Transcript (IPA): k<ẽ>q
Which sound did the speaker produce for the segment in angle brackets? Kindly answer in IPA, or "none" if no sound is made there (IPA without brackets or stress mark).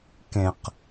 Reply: ẽ